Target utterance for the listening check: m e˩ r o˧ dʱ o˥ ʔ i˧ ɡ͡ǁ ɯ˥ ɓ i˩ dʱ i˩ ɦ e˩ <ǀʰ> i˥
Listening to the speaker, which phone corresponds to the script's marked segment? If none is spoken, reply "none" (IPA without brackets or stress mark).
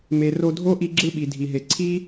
ǀʰ